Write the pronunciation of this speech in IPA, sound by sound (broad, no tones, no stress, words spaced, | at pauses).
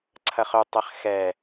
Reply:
ǀʰɐχɵtˤɛχ xɛ